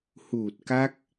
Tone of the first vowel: low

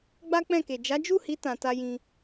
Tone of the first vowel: high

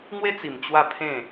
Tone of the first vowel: high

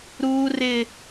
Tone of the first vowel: high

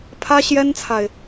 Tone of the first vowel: high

